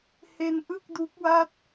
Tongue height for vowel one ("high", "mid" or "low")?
mid